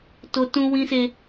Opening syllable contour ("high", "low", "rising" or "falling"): high